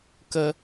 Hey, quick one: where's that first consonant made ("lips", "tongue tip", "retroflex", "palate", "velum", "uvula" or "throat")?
velum